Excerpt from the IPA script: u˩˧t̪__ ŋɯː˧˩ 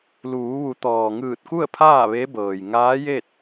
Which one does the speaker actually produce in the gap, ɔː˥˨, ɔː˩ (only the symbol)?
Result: ɔː˩